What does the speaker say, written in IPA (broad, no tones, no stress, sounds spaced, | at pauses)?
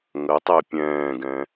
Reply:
ŋ ə tˤ e pʲ ɛ̃ː ɡ ɛ̃